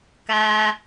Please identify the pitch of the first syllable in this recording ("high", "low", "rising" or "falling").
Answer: low